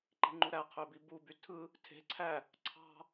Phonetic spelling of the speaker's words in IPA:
ǃi̤ŋ͡ǃuɾæ qʰøbibuby tʰɯ | tʰe̤ ǀʰæ | ǀʰɑ̤

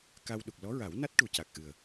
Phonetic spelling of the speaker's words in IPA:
ka˧w ɗu˨˩k̚lɔ˧˥ɹa˨˩˦wna˦˥t̚ ʈu˨˩ca˨˩k̚ʔɨ˨˩ə̯

